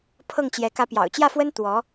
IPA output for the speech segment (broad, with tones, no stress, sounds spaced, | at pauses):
pʰ ɤ˥˩ ŋ t͡ɕ j ɛ˧˥ k ä˧˥ p j ɑ̰˨˩ ʊ̯ t͡ɕ j ä˥˩ f w ə˥ n t̪ w ɔ˧˥